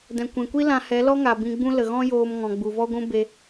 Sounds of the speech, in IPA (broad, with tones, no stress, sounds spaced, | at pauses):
d ɛ̃˨ kʷ ɛ̃˨ kʷ i˦ l ã˧ h ɛ˨˦ l ɔ˦ ŋ a˨ b ĩ˧ ɡ͡b ũ˦ l ə˨ ɣ ɔ̃˦ j oː˧ m ŋ ɔ̃˨ ɡ͡b u˨ v ɔ˦ ɡʷ ũ˦ b e˧